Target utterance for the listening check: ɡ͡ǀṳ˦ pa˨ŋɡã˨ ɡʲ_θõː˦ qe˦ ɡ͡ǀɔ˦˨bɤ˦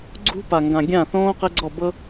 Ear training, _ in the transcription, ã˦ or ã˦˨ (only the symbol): ã˦˨